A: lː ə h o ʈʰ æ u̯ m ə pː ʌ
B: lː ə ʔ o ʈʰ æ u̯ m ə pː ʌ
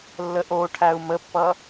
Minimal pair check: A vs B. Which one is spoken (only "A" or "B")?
B